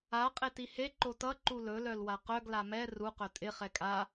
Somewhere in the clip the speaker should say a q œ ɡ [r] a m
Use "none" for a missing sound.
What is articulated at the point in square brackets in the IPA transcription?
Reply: l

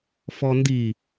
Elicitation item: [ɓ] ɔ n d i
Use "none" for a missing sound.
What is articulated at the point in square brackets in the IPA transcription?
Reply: f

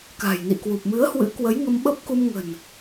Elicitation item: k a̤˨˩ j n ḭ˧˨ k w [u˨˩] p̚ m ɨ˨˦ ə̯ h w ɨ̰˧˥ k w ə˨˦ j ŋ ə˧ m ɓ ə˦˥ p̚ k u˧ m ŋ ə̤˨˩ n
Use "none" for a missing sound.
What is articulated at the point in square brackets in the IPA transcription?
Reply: u˨˩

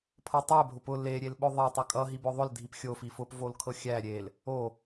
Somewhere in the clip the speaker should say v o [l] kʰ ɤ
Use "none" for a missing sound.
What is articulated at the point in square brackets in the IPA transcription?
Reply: l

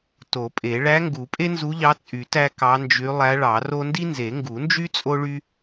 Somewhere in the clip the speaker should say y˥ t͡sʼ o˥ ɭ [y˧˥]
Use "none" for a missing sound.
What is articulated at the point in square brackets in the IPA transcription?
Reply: y˥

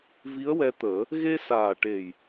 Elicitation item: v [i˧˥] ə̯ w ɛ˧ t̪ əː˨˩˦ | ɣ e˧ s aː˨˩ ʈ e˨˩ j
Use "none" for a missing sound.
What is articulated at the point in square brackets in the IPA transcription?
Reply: i˧˥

